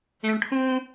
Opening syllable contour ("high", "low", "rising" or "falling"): low